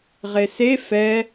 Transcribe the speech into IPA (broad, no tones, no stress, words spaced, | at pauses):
ʁese fɛ